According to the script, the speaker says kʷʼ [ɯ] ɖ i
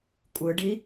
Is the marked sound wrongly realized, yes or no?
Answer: no